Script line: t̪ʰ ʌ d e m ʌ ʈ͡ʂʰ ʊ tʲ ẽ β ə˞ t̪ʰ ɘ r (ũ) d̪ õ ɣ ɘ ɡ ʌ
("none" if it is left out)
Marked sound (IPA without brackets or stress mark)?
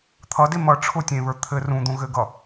ũ